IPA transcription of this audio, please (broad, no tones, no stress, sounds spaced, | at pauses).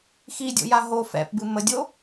x i dʲ o̰ j a ɦ o f ɛ̰ p b ɨ m ə dʲ o